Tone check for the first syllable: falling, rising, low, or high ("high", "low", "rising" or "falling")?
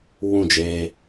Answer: falling